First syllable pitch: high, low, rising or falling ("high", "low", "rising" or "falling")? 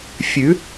rising